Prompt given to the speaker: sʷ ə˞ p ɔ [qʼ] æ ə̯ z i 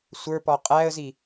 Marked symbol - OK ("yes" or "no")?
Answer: yes